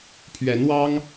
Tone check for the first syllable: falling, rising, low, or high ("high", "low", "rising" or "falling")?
rising